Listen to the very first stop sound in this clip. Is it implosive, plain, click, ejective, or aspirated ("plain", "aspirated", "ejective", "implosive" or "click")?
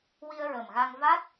plain